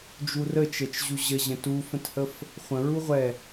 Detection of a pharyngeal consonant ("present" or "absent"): absent